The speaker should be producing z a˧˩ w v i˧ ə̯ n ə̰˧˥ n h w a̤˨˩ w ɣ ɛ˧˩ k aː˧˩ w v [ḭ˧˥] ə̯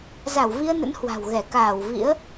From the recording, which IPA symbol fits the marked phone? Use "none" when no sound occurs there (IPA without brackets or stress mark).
ḭ˧˥